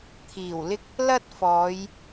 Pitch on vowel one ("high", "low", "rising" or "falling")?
low